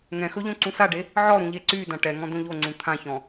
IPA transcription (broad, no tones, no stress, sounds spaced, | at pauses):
ŋ ɛ̃ x ɵ ʎ õ ǀ ũ s a ɖ e | ʕ ɔ ɾ ũ ʎ e ǀ y d ã ʈ ɛ ŋ ɔ̃ d õ ʎ o ŋ͡ǀ ũ t̪ʰ ã ç ɔ̃